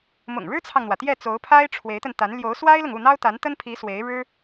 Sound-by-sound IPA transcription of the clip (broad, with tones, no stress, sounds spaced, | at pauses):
m ʊ̰˨˩ ŋ ɻ ɻ̩˥ t͡sʰ ɑ˨ ŋ n̪ w ä˩ t̪ j ɛ˥˩ t͡s o˧˥ ʊ̯ pʰ a˥ ɪ̯ ʈ͡ʂʰ w e˧˥ ɪ̯ t̪ ə˧ n t̪ a˧˥ n l j o˧˥ ʊ̯ s w a˥ ɪ̯ l ʊ˨ ŋ u˥˩ n̪ ɑ˥ ʊ̯ t̪ a˧˥ n t̪ ə˥ n pʰ i˧˥ s w e˧˥ ɪ̯ ɻ ɻ̩˥